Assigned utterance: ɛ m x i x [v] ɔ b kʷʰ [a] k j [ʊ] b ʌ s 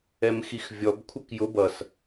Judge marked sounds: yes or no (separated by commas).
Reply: no, no, yes